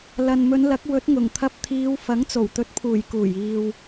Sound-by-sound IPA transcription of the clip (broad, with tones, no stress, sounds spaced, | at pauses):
l ɐ˨ n m ɵ˨˧ n l ɐ˨˥ k̚ w ɵ˨˥ t̚ ŋ ʊ˨˩ ŋ t̪ʰ ɐ˧ p̚ t̪ʰ iː˨˧ w f ɐ˨˥ ŋ t͡s o˨˩ w t̪ ɵ˨˥ t̚ pʰ uː˨˩ j k uː˨˩ j iː˨ w